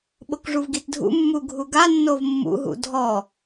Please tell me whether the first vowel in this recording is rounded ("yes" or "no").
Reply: yes